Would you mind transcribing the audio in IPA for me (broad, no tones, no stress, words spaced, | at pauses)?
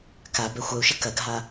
ka bɛxʷœu̯ʃə kɐɡʱa